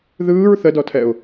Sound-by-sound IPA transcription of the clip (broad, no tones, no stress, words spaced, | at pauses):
ðɯːɹ θədɔtʰɛʊ̯